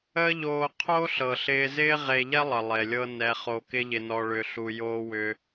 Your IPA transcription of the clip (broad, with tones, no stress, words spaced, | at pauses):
əː˦ʎoː˧ qʰo˦ɬɤ˨ ɬɪː˧zɪː˦ʁe˧ ʎɛ˦lˠə˨ lˠe˨lʲɤ˧ nɛ˧χo˧kɪ˦ ʎɪ˧nɔ˧ɭʏ˧ ɬu˧joː˦wʏ˦